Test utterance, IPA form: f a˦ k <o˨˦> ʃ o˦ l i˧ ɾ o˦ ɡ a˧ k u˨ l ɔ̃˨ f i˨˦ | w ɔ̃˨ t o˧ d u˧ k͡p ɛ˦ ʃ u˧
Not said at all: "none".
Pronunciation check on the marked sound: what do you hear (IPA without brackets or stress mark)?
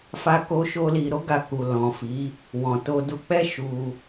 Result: o˦